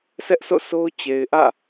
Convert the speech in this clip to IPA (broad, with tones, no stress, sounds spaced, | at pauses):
s ɛ˦ ʔ sʰ o̰˦˨ s o˦ ʊ̯ t͡ɕ e˨ ɪ̯ ʔ ä̰˦˨